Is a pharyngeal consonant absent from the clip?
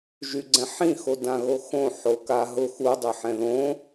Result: no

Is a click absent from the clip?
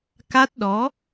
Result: yes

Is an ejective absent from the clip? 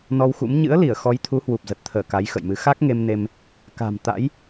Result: yes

